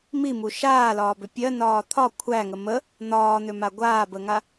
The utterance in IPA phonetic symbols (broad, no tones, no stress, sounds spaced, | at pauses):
m i m u ʃ aː l ɒː b ʏ pʲ ɜ n ɒː t̪ʰ ɒ kʷʰ æ ŋ ə m ə | n̪ ɒː n̪ ʏ m a ɡʷ aː b ə ŋ a